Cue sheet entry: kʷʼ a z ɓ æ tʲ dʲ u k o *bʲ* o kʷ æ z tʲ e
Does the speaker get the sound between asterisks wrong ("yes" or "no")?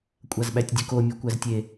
yes